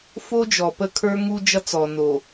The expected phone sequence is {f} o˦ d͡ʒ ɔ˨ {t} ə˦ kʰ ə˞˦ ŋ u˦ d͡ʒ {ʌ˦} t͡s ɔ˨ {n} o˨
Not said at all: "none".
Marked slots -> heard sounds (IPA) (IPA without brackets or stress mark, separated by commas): f, p, ʌ˦, n